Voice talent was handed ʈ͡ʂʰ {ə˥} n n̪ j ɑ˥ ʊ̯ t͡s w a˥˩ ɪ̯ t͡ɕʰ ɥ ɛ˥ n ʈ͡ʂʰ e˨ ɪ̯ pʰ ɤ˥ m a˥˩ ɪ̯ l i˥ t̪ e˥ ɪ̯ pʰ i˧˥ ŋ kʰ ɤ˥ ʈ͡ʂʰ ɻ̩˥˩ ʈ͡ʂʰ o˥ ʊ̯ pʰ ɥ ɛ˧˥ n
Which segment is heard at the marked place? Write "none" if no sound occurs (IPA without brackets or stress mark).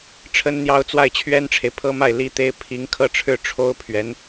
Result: ə˥